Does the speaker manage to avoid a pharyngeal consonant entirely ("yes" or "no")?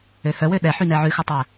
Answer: no